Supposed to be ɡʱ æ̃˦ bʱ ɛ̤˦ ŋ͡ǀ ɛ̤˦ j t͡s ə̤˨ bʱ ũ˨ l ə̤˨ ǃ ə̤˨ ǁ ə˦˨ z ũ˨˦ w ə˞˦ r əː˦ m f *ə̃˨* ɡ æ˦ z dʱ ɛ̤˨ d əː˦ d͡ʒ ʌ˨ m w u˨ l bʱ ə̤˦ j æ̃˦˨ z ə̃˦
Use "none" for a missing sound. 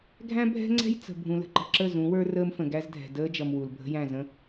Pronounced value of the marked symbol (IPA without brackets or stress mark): ə̃˨